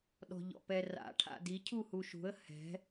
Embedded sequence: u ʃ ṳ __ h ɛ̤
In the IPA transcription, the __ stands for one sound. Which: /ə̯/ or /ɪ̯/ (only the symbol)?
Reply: ə̯